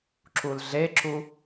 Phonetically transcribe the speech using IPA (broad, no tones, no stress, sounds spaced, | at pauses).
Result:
ǁ u l ɮ e ǁ u